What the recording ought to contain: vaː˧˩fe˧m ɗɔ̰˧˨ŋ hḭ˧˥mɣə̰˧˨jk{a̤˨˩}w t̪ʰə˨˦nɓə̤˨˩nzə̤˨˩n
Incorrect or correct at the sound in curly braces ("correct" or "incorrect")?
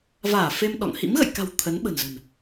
correct